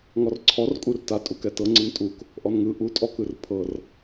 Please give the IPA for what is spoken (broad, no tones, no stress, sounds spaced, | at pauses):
ŋ ɔ r ǀʰ ɔ r kʼ u r t a tʼ u k ɛ t ɤ ŋ͡ǀ ɯ n tʼ u k | ʔ ɔ n ŋ ɯ ʔ u tʼ ɔ k ɯ r pʰ ɤ r